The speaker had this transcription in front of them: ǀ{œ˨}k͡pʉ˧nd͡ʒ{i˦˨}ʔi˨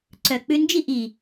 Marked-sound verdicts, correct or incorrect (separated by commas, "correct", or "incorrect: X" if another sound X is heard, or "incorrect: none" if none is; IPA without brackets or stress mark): correct, correct